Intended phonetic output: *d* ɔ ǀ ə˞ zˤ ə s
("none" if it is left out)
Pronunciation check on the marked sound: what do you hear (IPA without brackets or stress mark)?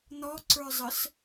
n̪